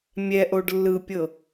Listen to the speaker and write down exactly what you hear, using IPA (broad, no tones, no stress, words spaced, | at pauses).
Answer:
mʲɛʔoɖ lːɯpʲɤ